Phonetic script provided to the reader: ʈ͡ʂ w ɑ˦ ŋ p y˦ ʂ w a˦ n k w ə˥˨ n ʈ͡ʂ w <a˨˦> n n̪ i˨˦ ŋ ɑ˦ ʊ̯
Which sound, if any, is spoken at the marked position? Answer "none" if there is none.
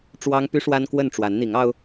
a˨˦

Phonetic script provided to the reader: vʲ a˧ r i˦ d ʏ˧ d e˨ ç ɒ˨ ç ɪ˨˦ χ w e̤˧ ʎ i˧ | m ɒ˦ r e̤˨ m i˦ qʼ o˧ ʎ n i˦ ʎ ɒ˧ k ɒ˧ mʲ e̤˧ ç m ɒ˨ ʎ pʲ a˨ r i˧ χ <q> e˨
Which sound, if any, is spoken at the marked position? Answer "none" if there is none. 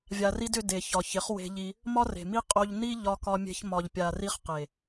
q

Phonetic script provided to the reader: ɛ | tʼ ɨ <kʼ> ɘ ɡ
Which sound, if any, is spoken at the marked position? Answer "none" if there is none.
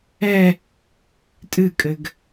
kʼ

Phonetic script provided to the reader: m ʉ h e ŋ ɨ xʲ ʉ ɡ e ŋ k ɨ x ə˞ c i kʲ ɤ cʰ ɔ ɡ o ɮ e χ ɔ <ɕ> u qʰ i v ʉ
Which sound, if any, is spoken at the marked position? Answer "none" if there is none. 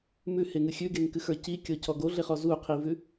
z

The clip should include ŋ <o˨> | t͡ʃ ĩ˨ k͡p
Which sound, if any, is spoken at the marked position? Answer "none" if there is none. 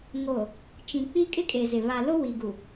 o˨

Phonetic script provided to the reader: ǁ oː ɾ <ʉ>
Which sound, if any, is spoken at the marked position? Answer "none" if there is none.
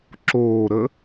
ə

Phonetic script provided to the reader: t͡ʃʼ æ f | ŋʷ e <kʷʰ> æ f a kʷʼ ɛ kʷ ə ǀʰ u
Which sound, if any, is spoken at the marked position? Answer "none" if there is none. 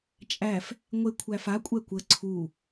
kʷʰ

